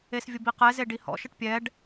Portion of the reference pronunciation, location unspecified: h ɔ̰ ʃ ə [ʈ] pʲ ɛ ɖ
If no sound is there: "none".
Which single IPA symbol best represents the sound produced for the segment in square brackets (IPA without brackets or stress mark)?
ʈ